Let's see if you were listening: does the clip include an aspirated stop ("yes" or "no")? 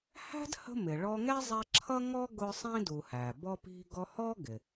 yes